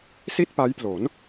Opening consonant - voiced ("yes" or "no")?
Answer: no